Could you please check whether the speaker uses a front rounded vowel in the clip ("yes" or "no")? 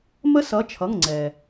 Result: no